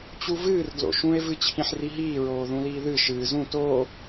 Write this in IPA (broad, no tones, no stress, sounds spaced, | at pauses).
t͡ɕ u v ɨː r d l o̰ ʃ ũ e̯ v ɨ t͡ɕʰ ĩ ħ r i ɦ iː ɹ oː ð ũ l iː ð ɨ ʃ ɨː z ũ t oː